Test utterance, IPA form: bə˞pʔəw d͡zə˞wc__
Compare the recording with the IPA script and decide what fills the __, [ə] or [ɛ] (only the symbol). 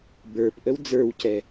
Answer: ɛ